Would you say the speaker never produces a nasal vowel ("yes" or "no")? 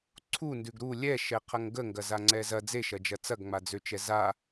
yes